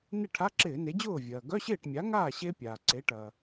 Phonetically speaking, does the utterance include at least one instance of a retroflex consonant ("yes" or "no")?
yes